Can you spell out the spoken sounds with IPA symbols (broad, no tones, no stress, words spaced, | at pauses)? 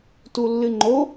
tulːɨŋ͡ǃo